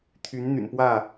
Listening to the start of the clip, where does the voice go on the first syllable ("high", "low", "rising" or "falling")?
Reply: rising